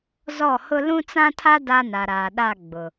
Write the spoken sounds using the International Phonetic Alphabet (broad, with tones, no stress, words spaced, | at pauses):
zɔ˦˨hʊ˦ lũ˦t͡sã˦tʰa˦ da˦na˨ɾaː˨ɗa˦˨ ɡ͡bʊ˨